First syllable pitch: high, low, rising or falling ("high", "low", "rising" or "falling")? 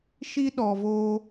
high